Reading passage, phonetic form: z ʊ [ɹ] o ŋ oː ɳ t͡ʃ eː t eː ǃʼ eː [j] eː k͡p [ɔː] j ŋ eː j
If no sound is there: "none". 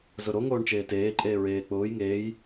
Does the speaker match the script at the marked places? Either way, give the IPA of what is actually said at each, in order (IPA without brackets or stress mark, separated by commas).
ɾ, ɹ, ʊː